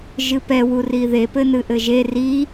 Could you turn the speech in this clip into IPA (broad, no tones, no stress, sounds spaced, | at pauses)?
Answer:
ʒ ɨ p ɛ w u r i ð e p ɘ n ɨ ʔ ɘ ʒ e r i